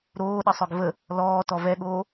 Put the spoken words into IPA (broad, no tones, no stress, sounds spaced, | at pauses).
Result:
ɾ oː ɗ ə sˤ œ ɡ v ə | l ɔː t ɔ v ɛ ɠ oː